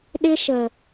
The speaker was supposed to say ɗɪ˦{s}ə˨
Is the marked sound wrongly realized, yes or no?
yes